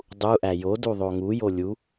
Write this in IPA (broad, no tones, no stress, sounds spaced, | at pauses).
dˤ u ʔ æ j o d u ðˤ o ŋ u j o lʲ u